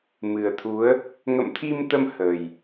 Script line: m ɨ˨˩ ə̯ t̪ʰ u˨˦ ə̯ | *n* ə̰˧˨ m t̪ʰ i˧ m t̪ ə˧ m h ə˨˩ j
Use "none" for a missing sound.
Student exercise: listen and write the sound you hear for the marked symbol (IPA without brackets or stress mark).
ŋ